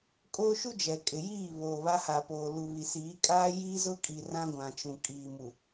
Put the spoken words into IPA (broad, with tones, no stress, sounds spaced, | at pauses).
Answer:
kʼ oː˦ ʃ u˦ d͡ʒ ɛ˨ kʼ ɪ˨ j iː˦˨ β oː˨ β a˦ h aː˨ p oː˨ l u˨ β i˨ s iː˨˦ kʼ aː˦ j iː˦ z ʊ˦ kʼ i˨ r ã˦ ɡʷ ã˨ t͡ʃ ũ˨ kʼ iː˨ m u˨